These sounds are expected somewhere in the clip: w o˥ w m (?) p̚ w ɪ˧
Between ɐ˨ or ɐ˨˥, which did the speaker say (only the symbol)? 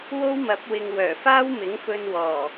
ɐ˨˥